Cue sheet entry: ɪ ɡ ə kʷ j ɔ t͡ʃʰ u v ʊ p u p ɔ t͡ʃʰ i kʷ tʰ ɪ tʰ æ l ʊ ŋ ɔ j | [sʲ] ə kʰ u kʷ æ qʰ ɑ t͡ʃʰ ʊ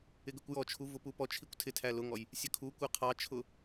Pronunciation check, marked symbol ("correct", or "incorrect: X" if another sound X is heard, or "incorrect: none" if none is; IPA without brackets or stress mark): correct